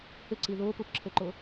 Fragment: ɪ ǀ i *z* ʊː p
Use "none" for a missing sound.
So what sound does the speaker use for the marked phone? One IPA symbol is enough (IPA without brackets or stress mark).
ð